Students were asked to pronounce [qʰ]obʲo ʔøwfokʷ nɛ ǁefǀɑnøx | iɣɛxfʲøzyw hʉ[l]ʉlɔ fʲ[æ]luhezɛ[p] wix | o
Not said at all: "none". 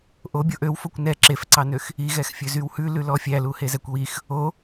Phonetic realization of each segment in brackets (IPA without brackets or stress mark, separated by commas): ʔ, l, æ, kʷ